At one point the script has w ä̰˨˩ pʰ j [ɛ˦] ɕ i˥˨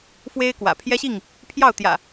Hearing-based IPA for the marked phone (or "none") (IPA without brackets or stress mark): ɛ˦